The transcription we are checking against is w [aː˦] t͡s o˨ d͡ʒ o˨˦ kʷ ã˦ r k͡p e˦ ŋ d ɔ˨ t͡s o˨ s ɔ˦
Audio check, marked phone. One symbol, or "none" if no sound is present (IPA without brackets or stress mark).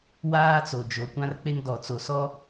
aː˦